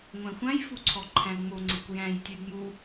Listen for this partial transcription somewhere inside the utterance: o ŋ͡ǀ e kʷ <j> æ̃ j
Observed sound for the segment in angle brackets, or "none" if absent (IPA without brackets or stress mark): j